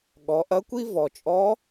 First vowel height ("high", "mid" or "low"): mid